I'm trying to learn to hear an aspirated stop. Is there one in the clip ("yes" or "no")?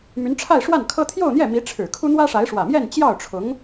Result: yes